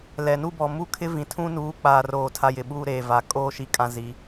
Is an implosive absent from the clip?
no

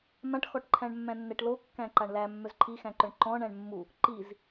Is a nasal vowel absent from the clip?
no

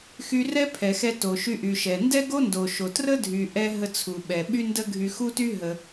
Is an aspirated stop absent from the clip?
no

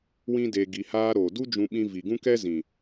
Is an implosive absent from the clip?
no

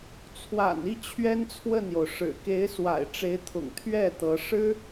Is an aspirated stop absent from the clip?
no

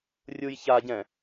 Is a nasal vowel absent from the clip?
no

